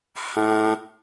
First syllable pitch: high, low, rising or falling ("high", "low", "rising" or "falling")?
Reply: high